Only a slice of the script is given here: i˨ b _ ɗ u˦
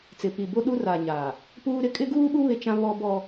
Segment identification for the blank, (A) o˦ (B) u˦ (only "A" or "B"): A